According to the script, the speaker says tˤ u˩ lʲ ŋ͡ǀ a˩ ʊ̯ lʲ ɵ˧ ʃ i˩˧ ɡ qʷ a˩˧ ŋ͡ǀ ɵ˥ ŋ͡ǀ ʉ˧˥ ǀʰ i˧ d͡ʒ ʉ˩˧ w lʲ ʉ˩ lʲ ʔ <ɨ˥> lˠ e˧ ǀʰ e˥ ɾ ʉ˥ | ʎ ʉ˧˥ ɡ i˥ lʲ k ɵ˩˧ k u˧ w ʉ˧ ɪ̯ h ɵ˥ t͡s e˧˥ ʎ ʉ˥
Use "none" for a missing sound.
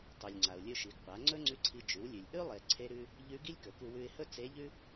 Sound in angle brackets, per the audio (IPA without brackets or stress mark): ʉ˥